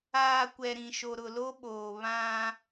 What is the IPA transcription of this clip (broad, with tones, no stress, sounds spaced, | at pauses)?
aː˨ kʷ ɛ˨ ɾ ĩ˨ ʃ o˨ ɾ ʊ˨ l o˦ ɓ oː˨ β ã˦